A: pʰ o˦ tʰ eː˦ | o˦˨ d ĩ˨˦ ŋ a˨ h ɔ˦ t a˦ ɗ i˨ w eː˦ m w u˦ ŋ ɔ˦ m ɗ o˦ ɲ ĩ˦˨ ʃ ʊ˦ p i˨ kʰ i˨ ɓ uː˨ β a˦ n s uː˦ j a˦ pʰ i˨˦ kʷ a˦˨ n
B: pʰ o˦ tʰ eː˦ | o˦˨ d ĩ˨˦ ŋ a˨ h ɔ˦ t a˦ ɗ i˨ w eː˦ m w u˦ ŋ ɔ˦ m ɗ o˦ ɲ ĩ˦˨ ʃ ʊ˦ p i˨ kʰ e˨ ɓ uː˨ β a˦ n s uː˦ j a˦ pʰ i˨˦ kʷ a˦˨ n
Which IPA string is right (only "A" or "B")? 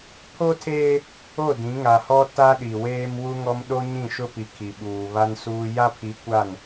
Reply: A